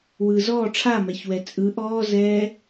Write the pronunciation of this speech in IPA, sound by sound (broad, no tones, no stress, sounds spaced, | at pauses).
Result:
w ɯː z ɔː ʈ͡ʂʰ a m ɛ ç w ɛ t͡sʼ ɯ ʔ ɔː z ɛː